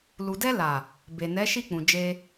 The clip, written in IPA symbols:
lu˨dɛ˧ la˨ | be˨nɛ˨˦ ʃi˦˨k͡pũ˨ d͡ʒe˧

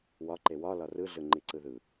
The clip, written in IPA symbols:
wɒǃe wɒlɒ rɯɮɯŋ͡ǃi ǀɯðɯ

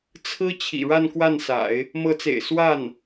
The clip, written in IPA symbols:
t͡sʰɹ̩˥ t͡ɕʰḭ˨˩ɻa˥˧nkwa˥˩nsa̰˨˩˦ɪ̯ | mɤ˧˥t͡sḛ˨˩ɪ̯ swa˥˩n

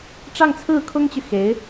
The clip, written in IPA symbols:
ʈ͡ʂɑ˥˧ŋt͡sʰɹ̩˥˩kʰʊ˥ŋt͡ɕy˨ xe˧˥ɪ̯

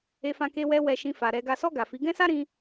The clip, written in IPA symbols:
e˧fã˧ke˧wɛ˧ wɛ˧ʃĩ˧fa˨ ɾɛ˨ɡa˨sɔ˧ ɡa˨fi˨˦ ɡɛ̃˦sa˦ɾĩ˧

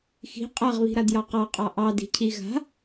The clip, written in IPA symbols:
xi̤ qʼaʁβi̤ɾadjɑ qɑqʼɑ ʔɑdi̤cʰi ɣa̤

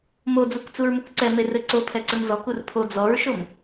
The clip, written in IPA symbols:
mod͡zukt͡suɹmuk ǀɛmerɘ ǀopʰɛǀɘm zɔkur pʰo d͡zɔɹʃom

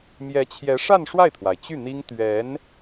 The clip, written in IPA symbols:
mjɛ˧˥t͡ɕʰjɛ˧˥ʂa˥˧n ʂwa˥˩ɪ̯t̪ʰwa˩ɪ̯ t͡ɕy˥˩n̪i˥ŋ t̪ɥɛ˧˥n

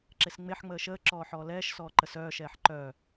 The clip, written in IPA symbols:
ǁesŋ͡meħ ŋ͡məːʃəː ǁɔːħɔːlɛːʃ sɔːǃəsœː ʃɛːħǃœ

